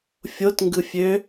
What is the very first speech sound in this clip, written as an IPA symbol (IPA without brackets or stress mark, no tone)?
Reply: fʲ